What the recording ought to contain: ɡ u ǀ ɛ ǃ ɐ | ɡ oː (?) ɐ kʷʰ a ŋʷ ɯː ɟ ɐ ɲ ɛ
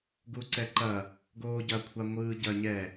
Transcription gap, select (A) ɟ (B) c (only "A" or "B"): A